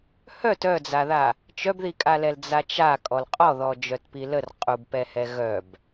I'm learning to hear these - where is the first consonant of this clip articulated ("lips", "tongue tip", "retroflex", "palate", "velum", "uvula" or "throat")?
throat